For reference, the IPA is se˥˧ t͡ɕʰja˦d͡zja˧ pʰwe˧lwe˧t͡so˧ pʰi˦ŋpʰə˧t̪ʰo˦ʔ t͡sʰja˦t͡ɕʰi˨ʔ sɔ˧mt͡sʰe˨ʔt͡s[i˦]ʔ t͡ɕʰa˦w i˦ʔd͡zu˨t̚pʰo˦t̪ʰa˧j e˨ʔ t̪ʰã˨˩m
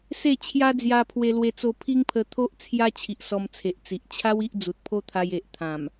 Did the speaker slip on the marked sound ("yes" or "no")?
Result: yes